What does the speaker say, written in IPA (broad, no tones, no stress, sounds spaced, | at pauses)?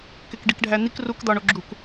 k e k ɖ i k ɖʱ æ n̪ i k r u k d̪ ɒ ɳ o ɡ͡ǁ u k